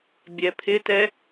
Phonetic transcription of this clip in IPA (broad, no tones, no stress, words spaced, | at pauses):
bʲɛpʰɪtɛ